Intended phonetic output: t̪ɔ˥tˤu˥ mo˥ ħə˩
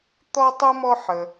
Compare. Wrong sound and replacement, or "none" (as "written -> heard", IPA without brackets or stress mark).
o˥ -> ɔ˥